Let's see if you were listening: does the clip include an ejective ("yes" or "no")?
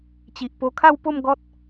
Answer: no